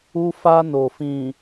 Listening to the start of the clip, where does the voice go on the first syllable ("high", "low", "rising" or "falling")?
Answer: high